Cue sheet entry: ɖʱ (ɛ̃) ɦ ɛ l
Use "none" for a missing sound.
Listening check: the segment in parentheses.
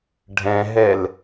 ɛ̃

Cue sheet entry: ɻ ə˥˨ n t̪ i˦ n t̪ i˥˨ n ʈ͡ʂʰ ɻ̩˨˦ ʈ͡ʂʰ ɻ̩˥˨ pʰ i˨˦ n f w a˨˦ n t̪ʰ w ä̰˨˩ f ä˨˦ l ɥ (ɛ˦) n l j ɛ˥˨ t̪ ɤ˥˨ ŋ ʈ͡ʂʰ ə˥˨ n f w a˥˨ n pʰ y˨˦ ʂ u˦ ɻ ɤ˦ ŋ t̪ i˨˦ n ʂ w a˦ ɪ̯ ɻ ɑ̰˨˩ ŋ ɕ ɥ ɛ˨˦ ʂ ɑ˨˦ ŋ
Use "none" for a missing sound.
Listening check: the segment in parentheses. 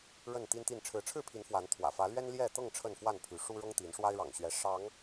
ɛ˦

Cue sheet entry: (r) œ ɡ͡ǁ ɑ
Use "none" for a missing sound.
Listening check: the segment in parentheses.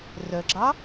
r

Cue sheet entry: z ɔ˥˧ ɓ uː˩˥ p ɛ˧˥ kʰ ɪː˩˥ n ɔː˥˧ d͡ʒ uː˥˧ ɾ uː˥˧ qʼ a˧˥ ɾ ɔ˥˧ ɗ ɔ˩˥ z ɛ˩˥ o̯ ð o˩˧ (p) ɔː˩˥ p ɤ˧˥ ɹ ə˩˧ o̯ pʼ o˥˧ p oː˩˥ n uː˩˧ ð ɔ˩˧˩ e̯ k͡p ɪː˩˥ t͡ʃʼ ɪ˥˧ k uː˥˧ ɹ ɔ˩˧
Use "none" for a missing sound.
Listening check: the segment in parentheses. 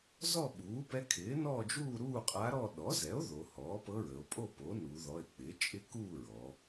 h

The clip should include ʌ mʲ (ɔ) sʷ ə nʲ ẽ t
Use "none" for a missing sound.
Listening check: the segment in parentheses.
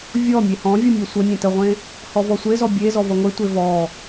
ɔ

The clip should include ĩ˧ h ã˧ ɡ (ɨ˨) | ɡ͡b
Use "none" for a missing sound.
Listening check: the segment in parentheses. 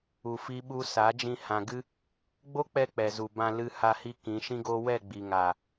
ɨ˦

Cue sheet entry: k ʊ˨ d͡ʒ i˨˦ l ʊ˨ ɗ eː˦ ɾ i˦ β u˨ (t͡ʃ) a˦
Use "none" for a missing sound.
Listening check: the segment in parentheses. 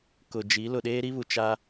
t͡ʃ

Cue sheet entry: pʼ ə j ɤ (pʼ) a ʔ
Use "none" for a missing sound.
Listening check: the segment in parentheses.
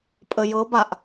b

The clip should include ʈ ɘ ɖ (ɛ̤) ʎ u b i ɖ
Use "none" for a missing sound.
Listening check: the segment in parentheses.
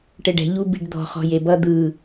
ɛ̤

